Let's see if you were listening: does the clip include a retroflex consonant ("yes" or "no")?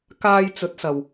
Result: no